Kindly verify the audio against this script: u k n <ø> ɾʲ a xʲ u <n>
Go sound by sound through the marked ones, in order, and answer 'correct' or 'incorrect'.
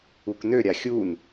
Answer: correct, correct

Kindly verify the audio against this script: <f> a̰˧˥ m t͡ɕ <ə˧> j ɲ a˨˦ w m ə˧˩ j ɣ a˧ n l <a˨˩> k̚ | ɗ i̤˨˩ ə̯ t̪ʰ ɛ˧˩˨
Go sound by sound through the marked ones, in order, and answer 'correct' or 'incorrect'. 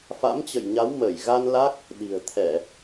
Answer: correct, incorrect: ə̰˧˨, incorrect: a˦˥

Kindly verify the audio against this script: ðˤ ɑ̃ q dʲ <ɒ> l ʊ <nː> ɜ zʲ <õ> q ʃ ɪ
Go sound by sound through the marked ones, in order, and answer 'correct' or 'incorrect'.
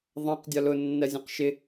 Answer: correct, correct, incorrect: ũ

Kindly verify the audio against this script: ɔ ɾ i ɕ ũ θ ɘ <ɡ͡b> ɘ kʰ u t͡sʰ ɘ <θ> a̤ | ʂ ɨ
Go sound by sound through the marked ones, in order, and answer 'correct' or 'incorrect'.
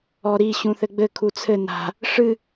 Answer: correct, incorrect: n

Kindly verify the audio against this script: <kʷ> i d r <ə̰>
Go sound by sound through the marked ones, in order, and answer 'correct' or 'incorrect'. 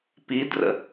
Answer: incorrect: p, correct

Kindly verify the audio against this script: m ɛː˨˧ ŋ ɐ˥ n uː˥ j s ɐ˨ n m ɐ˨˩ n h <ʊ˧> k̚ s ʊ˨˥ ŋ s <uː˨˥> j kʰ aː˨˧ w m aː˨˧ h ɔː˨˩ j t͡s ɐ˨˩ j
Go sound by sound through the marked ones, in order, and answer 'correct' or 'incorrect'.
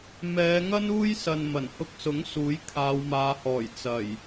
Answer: correct, correct

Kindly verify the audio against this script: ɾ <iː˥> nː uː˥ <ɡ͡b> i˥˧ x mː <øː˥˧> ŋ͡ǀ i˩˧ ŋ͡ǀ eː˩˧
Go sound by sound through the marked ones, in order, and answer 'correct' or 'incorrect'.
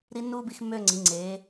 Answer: incorrect: i˥, incorrect: b, correct

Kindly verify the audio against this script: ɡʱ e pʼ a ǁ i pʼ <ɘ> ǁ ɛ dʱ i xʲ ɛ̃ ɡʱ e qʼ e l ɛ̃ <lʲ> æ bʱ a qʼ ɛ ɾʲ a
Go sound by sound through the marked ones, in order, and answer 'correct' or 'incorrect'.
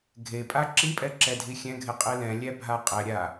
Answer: incorrect: ɛ, correct

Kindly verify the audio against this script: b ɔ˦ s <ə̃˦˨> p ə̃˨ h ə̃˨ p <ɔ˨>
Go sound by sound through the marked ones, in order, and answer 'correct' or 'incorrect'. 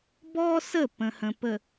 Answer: incorrect: ə˦˨, incorrect: ə˨

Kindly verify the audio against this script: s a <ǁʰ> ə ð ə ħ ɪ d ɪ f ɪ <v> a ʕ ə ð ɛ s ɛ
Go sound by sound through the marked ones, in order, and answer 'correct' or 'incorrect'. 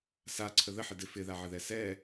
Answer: incorrect: ǀʰ, incorrect: ð

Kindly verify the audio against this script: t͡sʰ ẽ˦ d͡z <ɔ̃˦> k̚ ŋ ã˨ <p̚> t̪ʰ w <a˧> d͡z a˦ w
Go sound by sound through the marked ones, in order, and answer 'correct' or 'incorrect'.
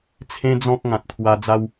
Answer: correct, incorrect: t̚, correct

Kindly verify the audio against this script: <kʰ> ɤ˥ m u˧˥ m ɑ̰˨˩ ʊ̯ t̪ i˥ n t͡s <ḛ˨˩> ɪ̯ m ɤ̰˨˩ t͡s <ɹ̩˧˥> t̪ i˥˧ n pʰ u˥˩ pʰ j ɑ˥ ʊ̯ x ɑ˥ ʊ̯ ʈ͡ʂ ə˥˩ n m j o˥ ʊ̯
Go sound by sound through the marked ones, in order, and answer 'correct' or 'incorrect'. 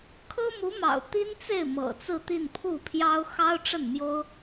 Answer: correct, incorrect: e˥˩, incorrect: ɹ̩˥˧

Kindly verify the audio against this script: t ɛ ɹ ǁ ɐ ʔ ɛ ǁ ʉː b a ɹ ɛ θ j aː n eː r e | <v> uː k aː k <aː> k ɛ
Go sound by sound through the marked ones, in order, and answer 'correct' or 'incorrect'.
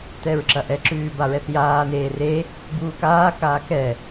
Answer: incorrect: b, correct

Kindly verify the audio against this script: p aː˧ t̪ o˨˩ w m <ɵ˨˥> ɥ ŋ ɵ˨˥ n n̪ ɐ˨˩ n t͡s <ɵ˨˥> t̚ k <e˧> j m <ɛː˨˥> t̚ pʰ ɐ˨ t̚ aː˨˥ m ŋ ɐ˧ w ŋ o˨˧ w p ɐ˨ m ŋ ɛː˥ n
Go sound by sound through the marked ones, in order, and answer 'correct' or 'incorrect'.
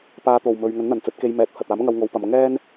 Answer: incorrect: ɵ˨, correct, correct, correct

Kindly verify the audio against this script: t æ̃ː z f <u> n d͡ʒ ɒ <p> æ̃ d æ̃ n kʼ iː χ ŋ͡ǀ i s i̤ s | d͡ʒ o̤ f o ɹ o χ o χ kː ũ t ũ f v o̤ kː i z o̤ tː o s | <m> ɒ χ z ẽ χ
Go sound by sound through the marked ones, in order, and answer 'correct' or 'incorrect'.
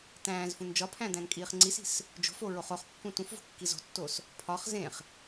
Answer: incorrect: ũ, incorrect: pʰ, incorrect: pʰ

